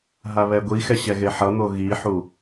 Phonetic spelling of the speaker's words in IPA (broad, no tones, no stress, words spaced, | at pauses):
ɦaβɛɡʷixɛ ɕɛɣeħʌn̪o ɣiħu